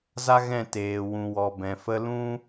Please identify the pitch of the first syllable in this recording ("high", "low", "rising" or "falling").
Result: high